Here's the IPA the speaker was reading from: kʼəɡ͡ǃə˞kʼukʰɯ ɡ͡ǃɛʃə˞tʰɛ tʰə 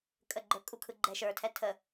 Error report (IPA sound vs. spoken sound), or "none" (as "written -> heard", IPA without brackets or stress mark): none